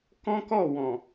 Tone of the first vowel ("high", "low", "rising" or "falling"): high